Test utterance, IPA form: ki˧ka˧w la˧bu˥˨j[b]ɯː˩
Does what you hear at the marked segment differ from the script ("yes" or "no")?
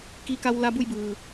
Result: no